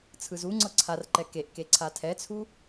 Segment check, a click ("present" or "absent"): present